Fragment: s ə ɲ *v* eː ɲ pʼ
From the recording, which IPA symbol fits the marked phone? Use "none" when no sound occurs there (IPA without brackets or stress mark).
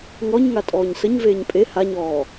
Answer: v